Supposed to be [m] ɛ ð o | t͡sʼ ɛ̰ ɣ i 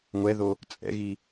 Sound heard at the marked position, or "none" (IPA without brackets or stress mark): ŋʷ